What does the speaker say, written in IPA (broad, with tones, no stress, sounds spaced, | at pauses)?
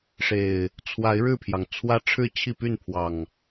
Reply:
ʂ e˨˩ ɪ̯ | t͡sʰ w a˨˦ ɪ̯ ɻ ɻ̩˥˨ pʰ j ɑ˩ ŋ t͡sʰ w ä˦ ʈ͡ʂʰ ɻ̩˥˨ t͡ɕʰ i˥˨ p y˥˨ n pʰ w ɑ˨˩ ŋ